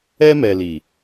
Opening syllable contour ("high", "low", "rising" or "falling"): high